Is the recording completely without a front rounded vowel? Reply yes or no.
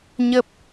yes